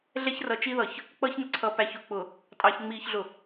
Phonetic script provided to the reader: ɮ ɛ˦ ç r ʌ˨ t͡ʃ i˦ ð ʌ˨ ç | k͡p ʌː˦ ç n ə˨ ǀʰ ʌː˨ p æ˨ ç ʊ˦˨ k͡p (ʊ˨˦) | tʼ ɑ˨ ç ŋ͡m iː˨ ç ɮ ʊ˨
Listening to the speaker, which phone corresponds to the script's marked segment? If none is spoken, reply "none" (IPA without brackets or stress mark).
ʊ˨